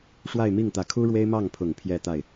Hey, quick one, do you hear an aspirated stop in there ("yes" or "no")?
yes